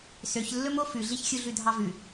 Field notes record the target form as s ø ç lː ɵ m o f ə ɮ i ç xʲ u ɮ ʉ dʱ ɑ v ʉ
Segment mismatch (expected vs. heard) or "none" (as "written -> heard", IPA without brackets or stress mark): ə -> ʉ